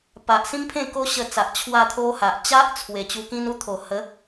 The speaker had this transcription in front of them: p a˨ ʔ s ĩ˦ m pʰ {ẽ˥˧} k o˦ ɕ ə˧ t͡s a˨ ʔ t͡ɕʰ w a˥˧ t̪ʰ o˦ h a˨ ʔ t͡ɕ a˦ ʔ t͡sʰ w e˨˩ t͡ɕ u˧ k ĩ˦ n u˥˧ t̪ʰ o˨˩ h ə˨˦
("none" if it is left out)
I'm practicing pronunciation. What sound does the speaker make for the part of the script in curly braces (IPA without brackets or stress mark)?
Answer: ẽ˥˧